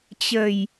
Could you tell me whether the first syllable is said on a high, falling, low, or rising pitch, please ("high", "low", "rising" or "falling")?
low